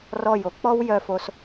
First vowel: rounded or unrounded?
rounded